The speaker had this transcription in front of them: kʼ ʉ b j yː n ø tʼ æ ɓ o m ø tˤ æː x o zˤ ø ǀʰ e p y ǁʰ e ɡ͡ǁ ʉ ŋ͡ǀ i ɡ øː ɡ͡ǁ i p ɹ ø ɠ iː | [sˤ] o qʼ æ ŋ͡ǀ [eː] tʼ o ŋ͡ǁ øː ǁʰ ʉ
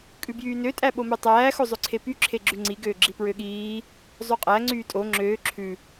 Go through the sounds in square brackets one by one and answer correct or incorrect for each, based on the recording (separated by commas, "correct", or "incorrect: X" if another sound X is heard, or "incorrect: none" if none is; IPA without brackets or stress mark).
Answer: incorrect: zˤ, incorrect: yː